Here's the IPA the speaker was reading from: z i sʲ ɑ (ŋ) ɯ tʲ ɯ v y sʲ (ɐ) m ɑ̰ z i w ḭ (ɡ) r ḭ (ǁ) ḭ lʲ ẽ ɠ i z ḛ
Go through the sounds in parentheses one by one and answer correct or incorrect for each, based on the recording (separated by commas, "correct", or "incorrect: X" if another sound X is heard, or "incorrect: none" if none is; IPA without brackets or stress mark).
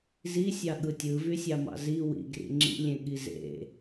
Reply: incorrect: ɠ, incorrect: ɑ, correct, incorrect: ŋ͡ǁ